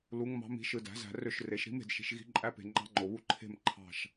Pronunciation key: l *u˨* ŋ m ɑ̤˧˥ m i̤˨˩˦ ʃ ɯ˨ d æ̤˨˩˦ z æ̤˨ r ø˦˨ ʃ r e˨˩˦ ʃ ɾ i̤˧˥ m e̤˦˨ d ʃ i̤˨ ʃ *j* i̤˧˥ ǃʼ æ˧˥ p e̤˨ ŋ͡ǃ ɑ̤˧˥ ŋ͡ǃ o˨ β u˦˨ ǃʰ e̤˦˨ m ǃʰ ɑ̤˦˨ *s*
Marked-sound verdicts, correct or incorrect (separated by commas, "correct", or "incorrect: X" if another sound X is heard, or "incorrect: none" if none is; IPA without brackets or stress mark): incorrect: u˧˥, incorrect: ɣ, incorrect: ʃ